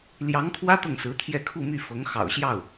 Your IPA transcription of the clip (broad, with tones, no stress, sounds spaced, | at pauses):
l j ɑ˧˥ ŋ kʰ w ä˥ t̪ ɤ˥˩ ŋ s ɹ̩˧˥ t̪ʰ j ɛ˥˧ kʰ u˥˧ m y˥˩ f ɤ˧˥ ŋ x ɑ̰˨˩ ʊ̯ ɕ j ɑ˥˩ ʊ̯